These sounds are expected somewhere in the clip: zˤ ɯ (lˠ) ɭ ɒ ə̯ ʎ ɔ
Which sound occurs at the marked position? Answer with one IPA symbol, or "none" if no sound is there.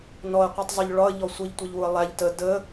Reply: ʎ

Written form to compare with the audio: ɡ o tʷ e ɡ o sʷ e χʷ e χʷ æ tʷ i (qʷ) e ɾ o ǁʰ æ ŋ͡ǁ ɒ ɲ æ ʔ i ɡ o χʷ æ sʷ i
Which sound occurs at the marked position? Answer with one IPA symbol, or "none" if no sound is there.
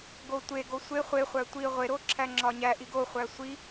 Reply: ʁʷ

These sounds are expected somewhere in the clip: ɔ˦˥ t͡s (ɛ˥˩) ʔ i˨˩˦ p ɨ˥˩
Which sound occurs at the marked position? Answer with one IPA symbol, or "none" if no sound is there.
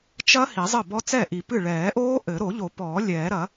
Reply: ɛ˥˩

